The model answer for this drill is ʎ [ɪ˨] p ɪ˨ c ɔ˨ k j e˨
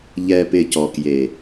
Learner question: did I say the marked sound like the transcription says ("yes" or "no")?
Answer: no